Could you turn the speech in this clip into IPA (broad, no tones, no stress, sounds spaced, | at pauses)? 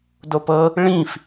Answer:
d o p ɤ | ɭ ĩ f